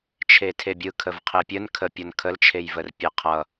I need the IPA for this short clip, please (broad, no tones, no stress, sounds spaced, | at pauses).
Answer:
t͡ʃʰ e tʰ e bʲ ɯ kʰ ə v qʰ e pʲ ə n kʰ ə pʲ ʌ n kʰ ə l t͡ʃʰ e j v ə r pʲ e qʰ ʌ